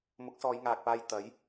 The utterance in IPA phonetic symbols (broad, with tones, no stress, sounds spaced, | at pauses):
m ʊ˨˥ k̚ s ɔː˨˧ j ŋ aː˨ k̚ p aː˧ j t̪ ɐ˨˥ j